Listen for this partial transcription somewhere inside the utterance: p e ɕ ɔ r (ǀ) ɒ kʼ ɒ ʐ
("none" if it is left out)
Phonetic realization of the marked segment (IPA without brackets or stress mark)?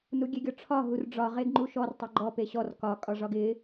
k